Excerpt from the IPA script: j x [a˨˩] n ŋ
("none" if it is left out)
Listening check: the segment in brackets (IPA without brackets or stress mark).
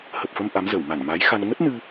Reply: a˧